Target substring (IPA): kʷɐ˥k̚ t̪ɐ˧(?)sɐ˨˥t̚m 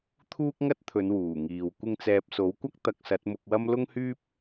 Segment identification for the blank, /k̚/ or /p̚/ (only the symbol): k̚